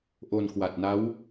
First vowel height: mid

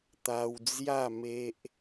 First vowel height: low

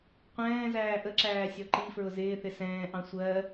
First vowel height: mid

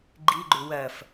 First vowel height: high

